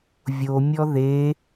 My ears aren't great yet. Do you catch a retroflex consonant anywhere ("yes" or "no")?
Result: no